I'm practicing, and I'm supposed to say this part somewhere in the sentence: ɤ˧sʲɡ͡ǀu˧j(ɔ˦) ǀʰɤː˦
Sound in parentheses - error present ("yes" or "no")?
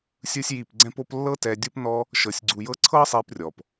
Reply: yes